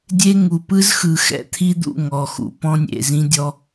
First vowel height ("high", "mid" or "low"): mid